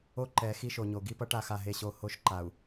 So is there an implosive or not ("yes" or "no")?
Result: no